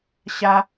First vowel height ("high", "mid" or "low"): low